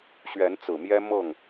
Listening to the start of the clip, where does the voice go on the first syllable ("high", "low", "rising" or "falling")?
rising